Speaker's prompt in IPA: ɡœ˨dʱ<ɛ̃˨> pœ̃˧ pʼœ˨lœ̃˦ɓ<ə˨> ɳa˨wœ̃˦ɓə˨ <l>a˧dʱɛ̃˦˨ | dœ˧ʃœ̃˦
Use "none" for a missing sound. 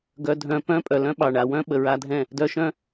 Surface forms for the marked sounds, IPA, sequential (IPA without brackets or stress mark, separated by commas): œ̃˨, ɑ˨, ɹ